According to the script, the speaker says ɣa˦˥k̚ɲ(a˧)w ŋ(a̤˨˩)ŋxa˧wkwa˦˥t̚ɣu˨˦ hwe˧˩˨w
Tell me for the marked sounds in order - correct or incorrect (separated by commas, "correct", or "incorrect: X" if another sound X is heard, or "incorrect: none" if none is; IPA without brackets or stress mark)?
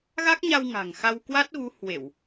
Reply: correct, correct